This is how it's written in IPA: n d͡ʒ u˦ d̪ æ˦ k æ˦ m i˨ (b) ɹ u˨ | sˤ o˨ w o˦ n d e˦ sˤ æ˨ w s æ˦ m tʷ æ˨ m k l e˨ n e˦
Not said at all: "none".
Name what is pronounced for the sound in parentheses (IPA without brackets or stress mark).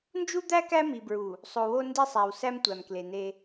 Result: b